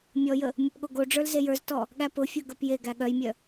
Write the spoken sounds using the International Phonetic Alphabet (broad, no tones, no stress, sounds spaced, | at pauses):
mʲ ɔ j ə | mʲ ʊ p ɠ o ɡ o ɖ͡ʐ ə˞ l z e j ə˞ z t ɔ | ɠ æ p ʊ fʲ ə˞ ɡ ə˞ p j e ɡ æ ɠ œ j mʲ œ